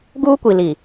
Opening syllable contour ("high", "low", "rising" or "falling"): high